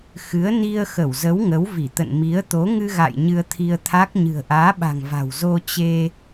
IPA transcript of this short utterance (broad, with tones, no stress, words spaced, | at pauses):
xɨ˨˦ə̯ ni˧ə̯xə˧˩wzə˨˦w ŋə˨˦wvi˧˩t̪ə̰˧˨n mi˨˦ə̯t̪o˨˦ ŋɨ˧ɣa̰˧˨j ɲɨ˧ə̯t̪ʰi˧ə̯t̪ʰa˦˥k̚ ɲɨ̤˨˩ə̯ʔaː˨˦ɓa̤˨˩ŋva̤˨˩w zo˧t͡ɕe˧